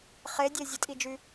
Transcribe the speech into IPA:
χ e dʲ e zʲ ə tʼ i d͡ʒ y

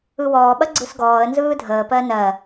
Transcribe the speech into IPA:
ɯ w ɔː ɓ ɐ ɡ͡ǀ ɯ s ɡ ɔː ə̯ n z ɯː dʱ əː p ɜ n ɜ

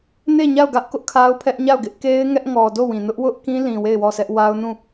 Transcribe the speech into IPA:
n e˦˨ ɲ a˦˨ ʊ̯ ɡ ä˦ ʔ k ʊ˦ ʔ kʰ a˦ ʊ̯ pʰ ɛ˦ ʔ ɲ a˦˨ ʊ̯ ɡ ɪ˦ ʔ k e˦ ɪ̯ ŋ ɛ˦ ʔ ŋ ɔ˨ d o˦˨ w ĩ˨ n ʊ˦ ʔ w ʊ˦ ʔ k ĩ˦ l ĩ˨ w e˦˨ ɪ̯ w ɔ˦˨ s ɛ˦ ʔ w a˦ ʊ̯ n ũ˦˨

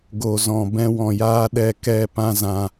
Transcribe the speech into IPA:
ɡ o˨ z ɔ̃˨ b ɛ̃˧ w ɔ̃˨ j aː˦ ɗ ɛ˦˨ k ɛ˦˨ p ã˦ z ã˧

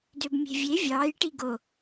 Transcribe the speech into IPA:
d ø b mʲ e̤ vʲ e vʲ ɑː j ʈ i ɡ o

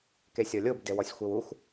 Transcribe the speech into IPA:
k e sʲ ɔ lʲ o b d e w ɔ sʲ xʷ e w u x

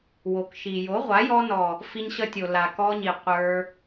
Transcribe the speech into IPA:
w o˨ k ʃ i˨ j o˨˦ ʁʷ a˨˦ j ɔ˧ n ɔ˨ | f i˧ ɲ ɕ ʌ˧ tʲ o˨ l a˨ k ɔ˧ ɲ i˨ qʷ ə˞˧

